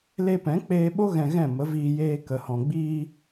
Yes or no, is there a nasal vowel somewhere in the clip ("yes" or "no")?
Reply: yes